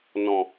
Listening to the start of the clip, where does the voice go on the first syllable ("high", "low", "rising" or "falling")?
low